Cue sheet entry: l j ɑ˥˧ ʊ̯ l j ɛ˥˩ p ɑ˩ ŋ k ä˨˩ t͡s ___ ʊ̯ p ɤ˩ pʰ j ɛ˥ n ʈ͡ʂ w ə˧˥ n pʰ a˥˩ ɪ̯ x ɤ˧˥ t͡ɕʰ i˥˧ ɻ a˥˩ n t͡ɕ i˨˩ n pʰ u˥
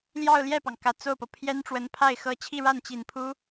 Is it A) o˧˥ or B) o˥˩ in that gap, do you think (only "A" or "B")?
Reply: B